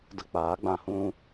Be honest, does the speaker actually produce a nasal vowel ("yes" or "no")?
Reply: yes